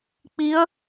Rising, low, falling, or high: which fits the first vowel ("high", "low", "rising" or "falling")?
rising